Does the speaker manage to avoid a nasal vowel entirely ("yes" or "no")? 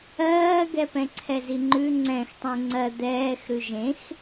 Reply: no